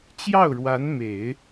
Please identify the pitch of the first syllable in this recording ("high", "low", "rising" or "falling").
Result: falling